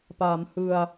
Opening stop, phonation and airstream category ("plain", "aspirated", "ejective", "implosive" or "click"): plain